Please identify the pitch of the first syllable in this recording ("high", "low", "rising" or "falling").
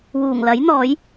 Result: low